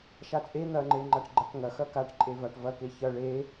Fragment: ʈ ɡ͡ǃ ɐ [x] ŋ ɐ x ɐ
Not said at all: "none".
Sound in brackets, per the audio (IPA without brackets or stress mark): k